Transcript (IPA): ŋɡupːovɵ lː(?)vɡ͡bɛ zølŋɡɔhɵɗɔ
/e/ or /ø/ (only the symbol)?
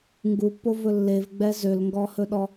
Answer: e